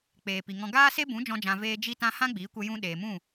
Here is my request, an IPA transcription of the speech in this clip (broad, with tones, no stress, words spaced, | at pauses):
k͡peː˨pi˨ŋɔ̃˧ ɡaː˦se˦bũ˨˦ d͡ʒɔ̃˦d͡ʒã˧veː˦ d͡ʒi˦tã˦ hã˦ɡ͡biː˨˦kʷə˧ jũ˧ ɗeː˨mũ˦˨